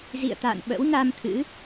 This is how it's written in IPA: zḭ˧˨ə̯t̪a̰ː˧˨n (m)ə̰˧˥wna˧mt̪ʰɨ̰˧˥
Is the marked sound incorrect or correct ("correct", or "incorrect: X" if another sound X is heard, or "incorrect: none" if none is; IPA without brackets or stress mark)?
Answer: incorrect: ɓ